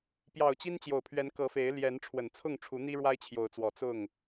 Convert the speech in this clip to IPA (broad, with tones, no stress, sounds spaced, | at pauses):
p j ɑ˨˩ ʊ̯ t͡ɕ i˦ n t͡ɕ j o˨˩ ʊ̯ pʰ ɥ ɛ˨˦ n k ɤ˨˦ f e˨˦ ɪ̯ l j ɛ˨˦ n ʈ͡ʂʰ w ə˨˩ n t͡sʰ ʊ˥˨ ŋ ʈ͡ʂʰ u˨˦ n̪ i˦ ɻ w a˦ ɪ̯ t͡ɕʰ j o˨˦ ʊ̯ t͡s w ɔ˨˩ t͡s ʊ˥˨ ŋ